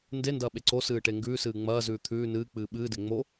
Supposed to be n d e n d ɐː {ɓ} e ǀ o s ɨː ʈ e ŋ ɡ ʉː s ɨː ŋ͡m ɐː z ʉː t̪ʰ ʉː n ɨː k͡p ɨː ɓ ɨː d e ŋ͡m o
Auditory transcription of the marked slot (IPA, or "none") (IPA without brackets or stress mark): ɓ